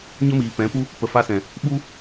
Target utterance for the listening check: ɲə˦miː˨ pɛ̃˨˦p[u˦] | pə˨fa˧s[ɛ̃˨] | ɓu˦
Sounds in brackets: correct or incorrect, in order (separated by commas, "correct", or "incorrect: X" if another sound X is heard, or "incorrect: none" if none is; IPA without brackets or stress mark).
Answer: correct, correct